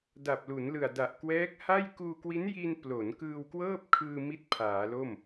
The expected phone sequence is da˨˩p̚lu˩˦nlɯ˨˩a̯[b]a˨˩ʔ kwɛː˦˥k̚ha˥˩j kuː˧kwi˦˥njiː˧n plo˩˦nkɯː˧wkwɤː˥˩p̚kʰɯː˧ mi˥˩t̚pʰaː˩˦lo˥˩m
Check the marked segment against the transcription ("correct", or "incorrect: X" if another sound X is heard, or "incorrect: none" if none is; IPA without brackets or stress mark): incorrect: d